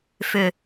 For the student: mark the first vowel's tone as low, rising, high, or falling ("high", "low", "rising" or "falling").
low